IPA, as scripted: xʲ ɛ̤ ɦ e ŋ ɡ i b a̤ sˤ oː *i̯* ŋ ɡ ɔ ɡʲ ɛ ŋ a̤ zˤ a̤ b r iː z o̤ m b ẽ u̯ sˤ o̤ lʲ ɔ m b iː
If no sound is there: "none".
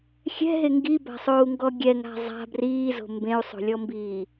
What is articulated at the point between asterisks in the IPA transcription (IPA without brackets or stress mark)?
u̯